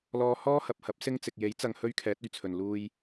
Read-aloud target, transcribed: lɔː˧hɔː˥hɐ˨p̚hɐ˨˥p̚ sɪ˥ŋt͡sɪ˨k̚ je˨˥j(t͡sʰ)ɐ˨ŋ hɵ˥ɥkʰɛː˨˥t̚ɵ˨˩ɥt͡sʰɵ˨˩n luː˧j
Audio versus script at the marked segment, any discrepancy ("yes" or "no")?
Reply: yes